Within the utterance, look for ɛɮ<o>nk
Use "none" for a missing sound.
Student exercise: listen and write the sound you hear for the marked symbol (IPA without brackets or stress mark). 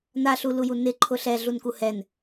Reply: u